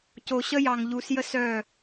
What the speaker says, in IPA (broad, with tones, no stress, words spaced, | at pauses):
co˨ɕə˦jɑ˨ŋ ʎu˨sjə˧ sœ˦˨